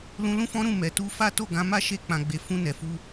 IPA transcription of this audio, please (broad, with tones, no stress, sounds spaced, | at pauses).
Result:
l ũ˧ l ũ˦ f ɔ̃˦ ɾ ũ˦˨ m ɛ˨ t u˧ f a˦ t o˦˨ ɡ ã˨˦ m a˦˨ ʃ e˧ k͡p ã˨ ɡ͡b e˨ f ũ˧ n ɛ˨ f u˧